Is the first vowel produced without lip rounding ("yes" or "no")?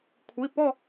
yes